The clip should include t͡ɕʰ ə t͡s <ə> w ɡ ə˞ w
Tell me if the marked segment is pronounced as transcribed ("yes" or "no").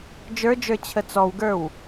no